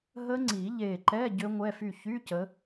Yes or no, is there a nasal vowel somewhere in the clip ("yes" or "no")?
no